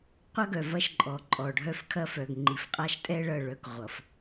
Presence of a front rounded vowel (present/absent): present